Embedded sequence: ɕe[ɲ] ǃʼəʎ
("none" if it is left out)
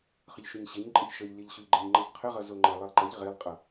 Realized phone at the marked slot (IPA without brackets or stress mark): ɲ